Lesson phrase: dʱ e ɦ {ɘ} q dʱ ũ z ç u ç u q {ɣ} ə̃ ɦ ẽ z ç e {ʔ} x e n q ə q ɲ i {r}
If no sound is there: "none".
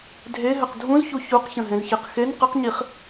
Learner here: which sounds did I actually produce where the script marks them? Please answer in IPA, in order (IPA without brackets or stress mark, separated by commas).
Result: ɘ, ç, q, χ